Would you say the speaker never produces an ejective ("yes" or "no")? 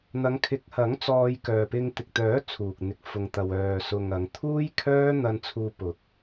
yes